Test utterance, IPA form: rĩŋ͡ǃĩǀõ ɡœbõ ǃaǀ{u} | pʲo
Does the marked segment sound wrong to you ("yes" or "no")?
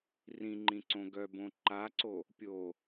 yes